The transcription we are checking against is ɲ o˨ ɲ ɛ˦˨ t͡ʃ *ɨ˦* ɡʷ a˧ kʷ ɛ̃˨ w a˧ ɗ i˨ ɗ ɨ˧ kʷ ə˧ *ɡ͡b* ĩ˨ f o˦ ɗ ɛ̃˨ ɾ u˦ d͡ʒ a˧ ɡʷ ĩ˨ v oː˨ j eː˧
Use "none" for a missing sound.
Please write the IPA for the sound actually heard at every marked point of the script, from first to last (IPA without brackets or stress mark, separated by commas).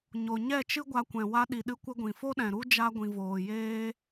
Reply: ɨ˦, ɡʷ